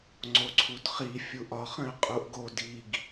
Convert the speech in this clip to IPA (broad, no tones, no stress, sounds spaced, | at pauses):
ŋ͡ǀ o ǀʰ u d χ i fʲ u ʔ ɒ χ ə̃ ɪ̯ qʼ u ʔ ɡ o d i ɡ